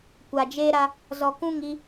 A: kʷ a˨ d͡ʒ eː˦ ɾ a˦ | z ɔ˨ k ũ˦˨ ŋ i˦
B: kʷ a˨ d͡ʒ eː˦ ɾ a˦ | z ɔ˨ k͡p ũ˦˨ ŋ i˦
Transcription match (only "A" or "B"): A